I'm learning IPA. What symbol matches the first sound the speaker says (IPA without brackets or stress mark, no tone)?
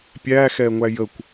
pʲ